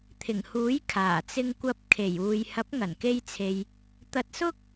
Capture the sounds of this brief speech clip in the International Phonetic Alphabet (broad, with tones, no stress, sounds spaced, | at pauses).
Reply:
t̪ʰ ɪ˨˩ ŋ h uː˨˥ j kʰ aː˨˩ t͡s ɪ˧ ŋ kʷ ɐ˧ p̚ kʰ e˨˩ j uː˨ j h ɐ˨˥ p̚ ŋ ɐ˨˩ n k e˧ j t͡sʰ e˨ j | t̪ ɐ˧ t̚ s ʊ˥ k̚